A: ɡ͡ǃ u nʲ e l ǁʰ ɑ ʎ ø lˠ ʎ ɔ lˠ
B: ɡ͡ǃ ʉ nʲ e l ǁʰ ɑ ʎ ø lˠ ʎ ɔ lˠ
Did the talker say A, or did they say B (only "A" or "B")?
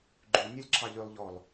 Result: B